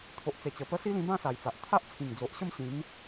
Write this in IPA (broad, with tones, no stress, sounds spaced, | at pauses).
t̪ʰ o˨ ʔ t͡s e˨˩ t͡ɕ ə˨˩ p ə˦ s i˦ l ĩ˧ b ã˥˧ s a˨˩ j t͡s a˨ ʔ t̪ʰ a˦ ʔ t͡sʰ ĩ˨˩ ŋ d͡z o˨ ʔ ɕ ə˥˧ m ɕ ĩ˨˦ m